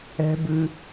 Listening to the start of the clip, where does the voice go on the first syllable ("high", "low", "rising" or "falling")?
high